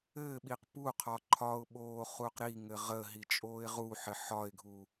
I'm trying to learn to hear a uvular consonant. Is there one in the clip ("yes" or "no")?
yes